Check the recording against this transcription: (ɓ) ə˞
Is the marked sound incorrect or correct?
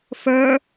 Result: incorrect